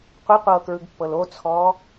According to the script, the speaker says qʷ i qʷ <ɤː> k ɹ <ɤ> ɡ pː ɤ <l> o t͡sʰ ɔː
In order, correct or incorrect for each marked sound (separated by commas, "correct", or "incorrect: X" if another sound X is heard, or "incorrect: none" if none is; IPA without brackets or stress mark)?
correct, incorrect: ɯ, correct